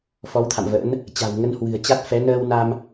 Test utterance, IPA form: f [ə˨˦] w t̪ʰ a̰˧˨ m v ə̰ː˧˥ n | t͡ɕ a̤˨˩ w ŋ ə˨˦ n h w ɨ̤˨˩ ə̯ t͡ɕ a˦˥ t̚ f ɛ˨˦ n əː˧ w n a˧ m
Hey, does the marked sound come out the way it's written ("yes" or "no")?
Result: no